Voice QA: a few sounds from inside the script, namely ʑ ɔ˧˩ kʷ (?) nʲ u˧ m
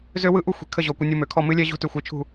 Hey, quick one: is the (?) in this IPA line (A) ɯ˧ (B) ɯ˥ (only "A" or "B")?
A